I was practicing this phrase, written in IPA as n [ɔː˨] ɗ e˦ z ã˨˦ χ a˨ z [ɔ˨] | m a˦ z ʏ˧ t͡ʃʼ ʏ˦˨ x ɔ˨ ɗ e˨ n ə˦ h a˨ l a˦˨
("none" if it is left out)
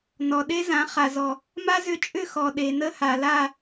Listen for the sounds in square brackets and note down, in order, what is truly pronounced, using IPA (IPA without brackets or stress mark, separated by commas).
ɔ˨, ɔ˨